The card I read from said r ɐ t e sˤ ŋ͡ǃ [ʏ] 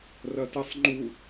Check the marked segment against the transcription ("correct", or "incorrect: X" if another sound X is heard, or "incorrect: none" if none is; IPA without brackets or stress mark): incorrect: u